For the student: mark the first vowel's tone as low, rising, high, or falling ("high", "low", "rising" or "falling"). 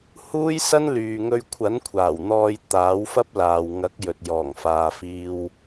high